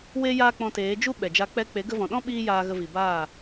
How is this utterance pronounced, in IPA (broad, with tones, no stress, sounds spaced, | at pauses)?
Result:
w e˦ j aː˦ k͡p ɔ̃˧ t eː˨˦ d͡ʒ u˦ ɓ ɛ˨ d͡ʒ a˧ k͡p ɛ˧ k͡p e˨˦ ɡ ə˧ v ɔ̃˨ ɗ ɔ̃˦ ɓ iː˦ j aː˧ ɣ ə˧ v i˨ b aː˦˨